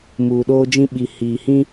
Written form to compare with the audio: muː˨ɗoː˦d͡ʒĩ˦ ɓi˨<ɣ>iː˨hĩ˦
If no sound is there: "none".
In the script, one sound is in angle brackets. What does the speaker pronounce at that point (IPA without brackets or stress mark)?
h